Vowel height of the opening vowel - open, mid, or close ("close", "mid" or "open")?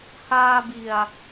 open